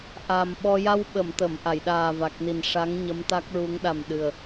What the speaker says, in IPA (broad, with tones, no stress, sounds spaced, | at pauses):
ʔ aː˨˩ m ɓ ɔ˧ j a˧ w ɓ ə˨˩˨ m t̪ ə˨˩˨ m ʔ a˨˩˨ j ɗ aː˨˩ v a˨˩ k̚ n i˨˩ n ʂ a˧˥ ŋ ɲ ə˧˥ m t̪ a˦˥ k̚ ɹ u˧˥ ŋ ɗ a˨˩ m ɗ ɨ˨˩ ə̯